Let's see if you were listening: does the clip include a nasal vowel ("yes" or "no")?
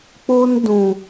yes